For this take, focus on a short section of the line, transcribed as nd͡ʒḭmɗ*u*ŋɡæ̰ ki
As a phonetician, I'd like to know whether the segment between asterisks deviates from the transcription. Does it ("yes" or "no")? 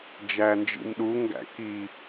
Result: no